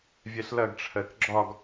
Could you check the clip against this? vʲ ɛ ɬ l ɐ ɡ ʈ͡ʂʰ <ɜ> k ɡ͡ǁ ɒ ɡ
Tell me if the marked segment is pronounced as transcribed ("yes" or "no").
yes